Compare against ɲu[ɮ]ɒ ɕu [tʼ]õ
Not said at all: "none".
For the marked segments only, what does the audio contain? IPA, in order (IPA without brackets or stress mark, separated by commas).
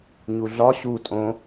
ɮ, tʼ